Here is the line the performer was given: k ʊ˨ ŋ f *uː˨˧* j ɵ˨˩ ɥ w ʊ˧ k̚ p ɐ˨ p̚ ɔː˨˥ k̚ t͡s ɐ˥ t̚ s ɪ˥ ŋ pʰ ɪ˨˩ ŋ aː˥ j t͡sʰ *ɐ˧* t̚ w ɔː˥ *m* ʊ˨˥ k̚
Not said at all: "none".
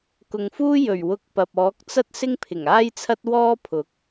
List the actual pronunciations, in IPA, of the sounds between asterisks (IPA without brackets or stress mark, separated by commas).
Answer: uː˥, ɐ˥, pʰ